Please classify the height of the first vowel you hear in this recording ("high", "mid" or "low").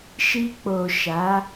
high